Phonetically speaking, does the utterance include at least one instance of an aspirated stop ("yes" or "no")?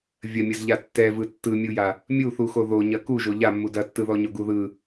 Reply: no